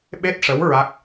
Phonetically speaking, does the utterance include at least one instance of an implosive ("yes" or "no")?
yes